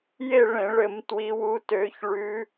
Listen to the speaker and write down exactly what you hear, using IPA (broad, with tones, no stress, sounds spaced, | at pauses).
j e˦˨ ɭ ẽ˧˩˧ ɭ ɘ˧˩˧ m t w i˨˦ w u˨˦ t ø˨˦ ç ɭ ʉ˨˦